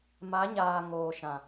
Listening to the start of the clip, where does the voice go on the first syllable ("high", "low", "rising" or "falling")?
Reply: rising